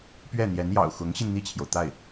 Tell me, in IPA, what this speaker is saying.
p ɥ ɛ˥˩ n̪ j ɛ˧˥ n j ɑ̰˨˩ ʊ̯ x ʊ˧˥ ŋ ɕ i˧ n n̪ i˥˩ t͡ɕʰ j o˩ ʊ̯ t̪ a˥˩ ɪ̯

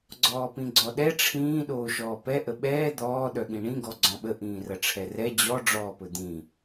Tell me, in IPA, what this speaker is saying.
ɡ͡ǀ ɔː p ĩ ɡ͡ǀ ɔ ɗ ɛ ʈ͡ʂʰ ĩː ɗ oː ʃ ɔː p ɛ ʔ ə ɓ ɛː d̪ ɔː ɗ œ ɠ ĩ ɳ ĩ ɡ ɔ ɡ͡ǀ ɔ̃ ɓ ə ʔ ĩː r ɐ ʈ͡ʂʰ ɛ r ɛ d͡ʑ ɔ ɖ͡ʐ ɔː p ɵ d̪ ĩ

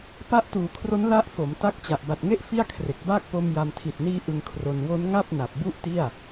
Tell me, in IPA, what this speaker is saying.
p a˦˥ ʔ t uː˩˦ kʰ r o˦˥ n l a˦˥ ʔ f o˩˦ m t a˦˥ k̚ t͡ɕ a˨˩ ʔ b a˨˩ t̚ ŋ e˦˥ ʔ f i˥˩ a̯ kʰ r e˨˩ k̚ b aː˥˩ k̚ p o˧ m j a˧ m tʰ i˨˩ t̚ n iː˦˥ ʔ ɯ˧ ŋ kʰ r o˧ n w o˦˥ n ŋ a˥˩ p̚ n a˨˩ p̚ b u˥˩ ʔ t i˥˩ a̯

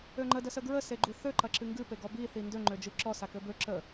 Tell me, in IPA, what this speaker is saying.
ø ŋ͡ǃ ə d ə s ə ɡ ɹ ə s e ɡ͡ǃ u θ ø ǃ ɐ ǁ ɨ ŋ ɡ ɨ p e ɡ ɔ b i θ i n d ø ŋ͡ǃ ø d͡ʒ ɨ ǁ ɔ s a k ø b ø ǁ ə

